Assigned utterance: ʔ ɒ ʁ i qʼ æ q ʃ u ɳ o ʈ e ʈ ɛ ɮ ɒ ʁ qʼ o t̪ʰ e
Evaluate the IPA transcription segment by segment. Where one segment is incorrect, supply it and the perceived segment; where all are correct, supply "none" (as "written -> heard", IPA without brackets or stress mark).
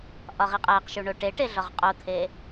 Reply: ɛ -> e